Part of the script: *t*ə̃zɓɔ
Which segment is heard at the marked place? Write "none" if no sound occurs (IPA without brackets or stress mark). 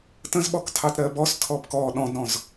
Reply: t